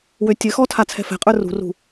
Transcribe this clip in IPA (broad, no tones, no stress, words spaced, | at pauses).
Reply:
wøtʲɘxɔtʰa t͡sʰɛ̤fɛ̤qʼə˞ rṳrṳ